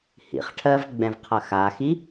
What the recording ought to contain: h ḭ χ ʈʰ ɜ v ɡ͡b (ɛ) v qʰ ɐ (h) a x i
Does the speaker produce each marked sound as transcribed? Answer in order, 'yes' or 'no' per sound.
no, no

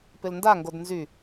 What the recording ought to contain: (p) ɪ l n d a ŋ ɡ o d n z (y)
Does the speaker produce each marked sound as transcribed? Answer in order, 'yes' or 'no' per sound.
yes, yes

